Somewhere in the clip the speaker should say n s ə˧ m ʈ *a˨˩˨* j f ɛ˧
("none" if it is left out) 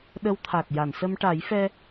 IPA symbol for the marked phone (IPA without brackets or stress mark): a˨˩˦